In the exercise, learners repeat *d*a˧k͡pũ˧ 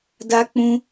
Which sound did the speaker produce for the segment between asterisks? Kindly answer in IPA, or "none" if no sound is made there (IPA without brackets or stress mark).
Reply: d